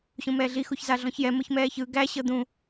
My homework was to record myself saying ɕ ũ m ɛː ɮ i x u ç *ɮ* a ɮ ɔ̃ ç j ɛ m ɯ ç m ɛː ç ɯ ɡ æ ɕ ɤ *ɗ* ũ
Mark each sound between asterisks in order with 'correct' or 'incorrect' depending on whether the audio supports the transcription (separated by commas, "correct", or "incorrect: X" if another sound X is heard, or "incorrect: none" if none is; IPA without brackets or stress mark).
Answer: incorrect: z, incorrect: d̪